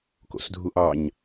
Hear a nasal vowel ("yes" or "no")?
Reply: no